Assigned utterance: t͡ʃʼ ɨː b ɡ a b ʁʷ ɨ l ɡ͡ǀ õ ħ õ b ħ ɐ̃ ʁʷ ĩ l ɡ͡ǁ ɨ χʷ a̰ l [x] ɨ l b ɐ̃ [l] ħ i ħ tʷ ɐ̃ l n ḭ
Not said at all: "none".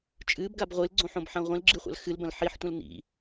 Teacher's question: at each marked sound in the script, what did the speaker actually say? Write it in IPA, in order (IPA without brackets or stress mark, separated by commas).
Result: x, l